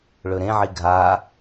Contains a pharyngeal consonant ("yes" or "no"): yes